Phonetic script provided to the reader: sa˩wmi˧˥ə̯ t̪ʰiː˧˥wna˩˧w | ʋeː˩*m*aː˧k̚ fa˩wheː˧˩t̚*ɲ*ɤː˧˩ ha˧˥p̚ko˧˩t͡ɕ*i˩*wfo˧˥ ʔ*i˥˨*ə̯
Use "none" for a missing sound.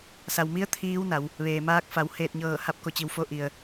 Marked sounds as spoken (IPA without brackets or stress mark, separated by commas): m, ɲ, i˩, i˩